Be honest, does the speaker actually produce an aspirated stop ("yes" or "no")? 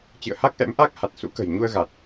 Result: no